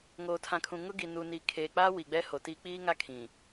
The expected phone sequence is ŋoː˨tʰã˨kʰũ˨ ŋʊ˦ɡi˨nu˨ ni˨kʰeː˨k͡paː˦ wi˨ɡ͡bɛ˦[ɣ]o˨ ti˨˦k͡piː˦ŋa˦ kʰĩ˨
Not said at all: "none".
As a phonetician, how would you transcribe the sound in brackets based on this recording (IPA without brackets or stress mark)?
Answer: h